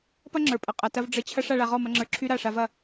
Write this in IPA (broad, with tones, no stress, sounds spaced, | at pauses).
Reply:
p ɐ˦ ŋ͡ǁ ə˞˨ pʼ ə˨ qʼ ɐ˨ t ɐ˧ v ɖ͡ʐ ə˧ t͡ɕʰ ɐ˦ ʂ a˧ ɭ a˧ ʁ ɔ˦˨ m ɐ˧ ŋ͡ǁ ə˞˧ ǁʰ y˦ ɾ a˦˨ ʂ a˧ v ɐ˦˨